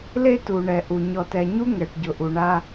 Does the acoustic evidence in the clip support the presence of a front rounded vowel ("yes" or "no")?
no